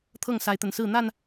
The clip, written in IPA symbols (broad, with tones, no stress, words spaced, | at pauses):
t̪ʰɤ˥˨ŋsa˨˦ɪ̯t̪ə˨˩nsɹ̩˥˨ n̪a˥˨n